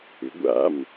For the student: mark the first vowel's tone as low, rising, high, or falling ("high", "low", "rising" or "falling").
rising